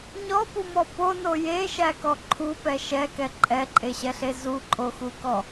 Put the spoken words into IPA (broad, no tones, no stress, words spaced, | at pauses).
ɲɔpumɔ pono jeʃækɔ ǃʰupɛ ʃɛkɛ ǃʼɛǃʼeɕɛɬe zuǃʼoxukɔ